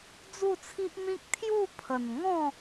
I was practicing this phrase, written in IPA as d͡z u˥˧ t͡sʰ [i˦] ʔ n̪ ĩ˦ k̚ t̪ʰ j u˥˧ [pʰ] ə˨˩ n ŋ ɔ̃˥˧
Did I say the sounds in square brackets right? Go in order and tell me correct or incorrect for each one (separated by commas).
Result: correct, correct